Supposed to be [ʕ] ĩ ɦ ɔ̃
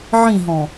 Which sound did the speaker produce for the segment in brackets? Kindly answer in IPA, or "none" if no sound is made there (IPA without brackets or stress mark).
ʕ